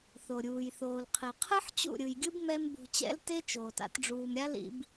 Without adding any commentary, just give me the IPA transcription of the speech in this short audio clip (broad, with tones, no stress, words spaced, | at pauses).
θo˨ɾʲuː˨jθoː˨lqʰi˨ qʰɯ˦ħ t͡ɕṵ˦˨ɾʲɯ˨jɡʲɯ˦b mɛ˦m bṳ˨t͡ɕɛ̰˦lte˦ t͡ʃoː˨ta̰˦t ɖ͡ʐuː˨mɾʲa˦ lḭ˨b